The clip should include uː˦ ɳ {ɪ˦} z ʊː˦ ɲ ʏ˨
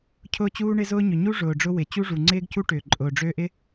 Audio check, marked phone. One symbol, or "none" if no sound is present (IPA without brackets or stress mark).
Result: ɪ˦